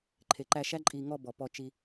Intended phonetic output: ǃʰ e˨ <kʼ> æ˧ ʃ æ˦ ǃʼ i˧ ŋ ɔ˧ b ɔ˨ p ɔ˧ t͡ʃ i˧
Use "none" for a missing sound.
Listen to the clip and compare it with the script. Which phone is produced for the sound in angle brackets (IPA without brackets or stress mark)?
ǃ